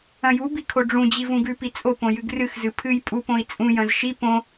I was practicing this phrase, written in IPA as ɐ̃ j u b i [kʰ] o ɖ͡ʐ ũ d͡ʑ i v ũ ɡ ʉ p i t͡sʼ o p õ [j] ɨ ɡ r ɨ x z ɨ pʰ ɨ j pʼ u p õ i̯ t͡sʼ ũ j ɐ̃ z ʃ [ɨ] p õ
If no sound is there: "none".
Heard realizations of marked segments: kʰ, j, i

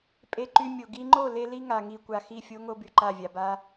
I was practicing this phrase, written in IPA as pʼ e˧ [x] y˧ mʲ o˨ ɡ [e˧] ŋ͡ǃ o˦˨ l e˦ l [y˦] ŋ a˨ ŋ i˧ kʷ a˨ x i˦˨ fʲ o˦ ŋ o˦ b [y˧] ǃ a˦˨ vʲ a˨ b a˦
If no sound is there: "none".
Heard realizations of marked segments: ǃ, i˧, i˦, y˨

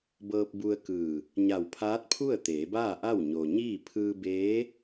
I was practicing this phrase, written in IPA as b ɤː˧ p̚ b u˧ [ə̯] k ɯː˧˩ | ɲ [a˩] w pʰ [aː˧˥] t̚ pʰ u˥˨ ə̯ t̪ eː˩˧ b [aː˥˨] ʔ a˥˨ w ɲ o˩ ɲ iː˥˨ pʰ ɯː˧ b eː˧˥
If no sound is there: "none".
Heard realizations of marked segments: ə̯, a˧˩, aː˧˥, aː˥˨

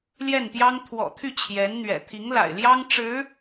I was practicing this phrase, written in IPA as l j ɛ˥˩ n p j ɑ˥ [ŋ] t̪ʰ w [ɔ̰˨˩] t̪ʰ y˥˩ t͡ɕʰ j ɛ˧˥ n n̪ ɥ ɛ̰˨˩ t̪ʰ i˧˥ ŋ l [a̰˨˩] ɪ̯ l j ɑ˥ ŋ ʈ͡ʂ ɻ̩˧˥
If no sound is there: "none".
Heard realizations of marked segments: ŋ, ɔ̰˨˩, a̰˨˩

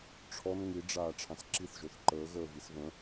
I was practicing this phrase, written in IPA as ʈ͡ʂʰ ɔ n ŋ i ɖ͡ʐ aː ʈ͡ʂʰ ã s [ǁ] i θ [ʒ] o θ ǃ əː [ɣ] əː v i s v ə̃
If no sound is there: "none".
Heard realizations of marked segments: ǁ, ʒ, ɣ

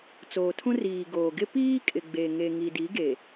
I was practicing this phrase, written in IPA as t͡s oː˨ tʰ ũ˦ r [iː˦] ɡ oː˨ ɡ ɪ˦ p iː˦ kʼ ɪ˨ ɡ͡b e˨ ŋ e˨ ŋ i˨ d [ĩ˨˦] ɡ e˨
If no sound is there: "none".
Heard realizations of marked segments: iː˨, i˨˦

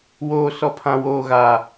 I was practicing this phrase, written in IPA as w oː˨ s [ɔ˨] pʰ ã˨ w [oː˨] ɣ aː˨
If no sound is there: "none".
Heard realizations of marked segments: ɔ˨, oː˨

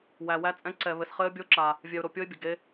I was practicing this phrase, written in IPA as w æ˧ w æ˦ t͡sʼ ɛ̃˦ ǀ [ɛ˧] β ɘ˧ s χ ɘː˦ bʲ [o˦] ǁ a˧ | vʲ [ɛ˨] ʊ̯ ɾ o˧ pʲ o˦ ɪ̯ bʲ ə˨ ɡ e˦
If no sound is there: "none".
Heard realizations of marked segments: ɛ˧, o˦, ɛ˧

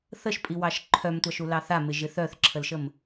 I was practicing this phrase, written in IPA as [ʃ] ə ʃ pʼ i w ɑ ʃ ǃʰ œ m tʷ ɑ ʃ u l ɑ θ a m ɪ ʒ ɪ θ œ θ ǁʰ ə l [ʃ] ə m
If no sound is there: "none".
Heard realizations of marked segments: θ, ʃ

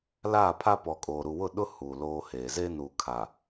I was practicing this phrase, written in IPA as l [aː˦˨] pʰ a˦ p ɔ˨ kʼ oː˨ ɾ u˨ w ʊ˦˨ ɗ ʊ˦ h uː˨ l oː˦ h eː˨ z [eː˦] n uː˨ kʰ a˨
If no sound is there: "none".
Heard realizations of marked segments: aː˦˨, e˦

